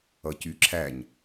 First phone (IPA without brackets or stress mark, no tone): ʌ